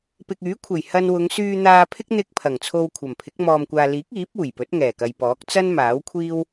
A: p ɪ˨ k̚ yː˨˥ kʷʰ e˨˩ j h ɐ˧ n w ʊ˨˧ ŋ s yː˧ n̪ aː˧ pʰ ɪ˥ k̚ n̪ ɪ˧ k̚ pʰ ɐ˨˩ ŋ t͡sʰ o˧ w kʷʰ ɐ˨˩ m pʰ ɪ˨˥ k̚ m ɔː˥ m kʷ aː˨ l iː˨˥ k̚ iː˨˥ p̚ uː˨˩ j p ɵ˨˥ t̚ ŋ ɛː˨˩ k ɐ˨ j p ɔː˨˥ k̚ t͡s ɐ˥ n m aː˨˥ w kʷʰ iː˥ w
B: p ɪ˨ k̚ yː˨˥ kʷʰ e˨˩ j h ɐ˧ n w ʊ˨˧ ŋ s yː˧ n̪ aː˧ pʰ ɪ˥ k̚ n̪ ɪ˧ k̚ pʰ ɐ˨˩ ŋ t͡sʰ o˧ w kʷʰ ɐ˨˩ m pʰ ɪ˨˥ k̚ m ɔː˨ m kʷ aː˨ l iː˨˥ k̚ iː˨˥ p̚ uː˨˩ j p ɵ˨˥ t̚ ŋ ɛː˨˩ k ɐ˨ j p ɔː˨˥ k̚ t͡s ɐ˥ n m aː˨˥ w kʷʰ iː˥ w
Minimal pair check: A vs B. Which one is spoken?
B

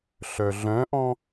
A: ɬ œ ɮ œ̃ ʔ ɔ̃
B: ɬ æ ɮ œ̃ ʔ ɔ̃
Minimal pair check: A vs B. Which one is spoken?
A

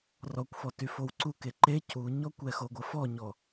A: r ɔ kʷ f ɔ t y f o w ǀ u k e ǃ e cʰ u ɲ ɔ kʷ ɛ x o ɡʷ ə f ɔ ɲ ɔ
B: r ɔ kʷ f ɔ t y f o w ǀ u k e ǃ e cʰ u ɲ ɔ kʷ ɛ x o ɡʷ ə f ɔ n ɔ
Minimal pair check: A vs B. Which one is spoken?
A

